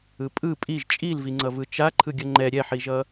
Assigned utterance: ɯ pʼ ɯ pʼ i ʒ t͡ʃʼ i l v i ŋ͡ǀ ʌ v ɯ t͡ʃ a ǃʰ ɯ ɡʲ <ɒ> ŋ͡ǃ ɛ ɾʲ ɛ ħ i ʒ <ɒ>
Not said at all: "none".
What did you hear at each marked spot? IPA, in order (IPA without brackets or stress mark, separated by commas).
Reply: ʌ, ʌ